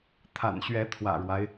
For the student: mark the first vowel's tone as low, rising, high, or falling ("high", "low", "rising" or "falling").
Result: low